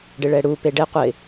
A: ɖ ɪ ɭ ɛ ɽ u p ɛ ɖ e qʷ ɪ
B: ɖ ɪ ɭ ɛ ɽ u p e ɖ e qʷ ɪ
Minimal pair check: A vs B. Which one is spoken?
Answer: B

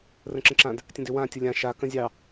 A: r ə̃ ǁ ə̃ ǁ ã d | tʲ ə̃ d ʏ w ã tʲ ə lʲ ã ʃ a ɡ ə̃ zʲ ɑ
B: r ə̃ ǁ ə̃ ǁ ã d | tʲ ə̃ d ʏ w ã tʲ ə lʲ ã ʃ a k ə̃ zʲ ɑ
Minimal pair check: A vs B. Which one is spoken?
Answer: B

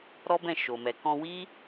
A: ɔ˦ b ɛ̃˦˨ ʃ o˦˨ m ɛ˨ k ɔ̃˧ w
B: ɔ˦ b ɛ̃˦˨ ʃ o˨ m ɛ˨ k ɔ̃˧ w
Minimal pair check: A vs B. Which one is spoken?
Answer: B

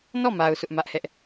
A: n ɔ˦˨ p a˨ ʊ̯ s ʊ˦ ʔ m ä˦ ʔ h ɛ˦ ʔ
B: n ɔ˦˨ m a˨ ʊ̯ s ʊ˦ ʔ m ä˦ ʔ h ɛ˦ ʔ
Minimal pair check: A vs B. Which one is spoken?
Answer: B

